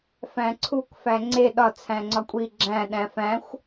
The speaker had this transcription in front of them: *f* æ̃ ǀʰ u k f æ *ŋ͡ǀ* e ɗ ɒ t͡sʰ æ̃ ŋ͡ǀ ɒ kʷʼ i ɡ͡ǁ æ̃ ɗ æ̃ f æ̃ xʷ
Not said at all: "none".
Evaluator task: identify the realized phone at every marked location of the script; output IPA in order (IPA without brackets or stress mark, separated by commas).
f, ŋ͡ǀ